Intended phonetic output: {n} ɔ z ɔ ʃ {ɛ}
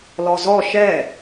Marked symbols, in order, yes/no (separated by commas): no, yes